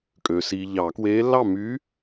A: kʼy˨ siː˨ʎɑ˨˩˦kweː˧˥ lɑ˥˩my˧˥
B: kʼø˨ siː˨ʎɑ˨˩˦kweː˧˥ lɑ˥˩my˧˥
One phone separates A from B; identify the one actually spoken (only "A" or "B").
B